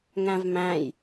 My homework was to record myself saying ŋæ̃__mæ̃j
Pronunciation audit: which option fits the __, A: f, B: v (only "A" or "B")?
B